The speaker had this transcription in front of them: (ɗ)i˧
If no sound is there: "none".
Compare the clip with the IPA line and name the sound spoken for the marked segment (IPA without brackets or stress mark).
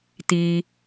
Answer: t̪